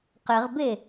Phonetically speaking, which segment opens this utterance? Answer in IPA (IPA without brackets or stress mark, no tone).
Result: q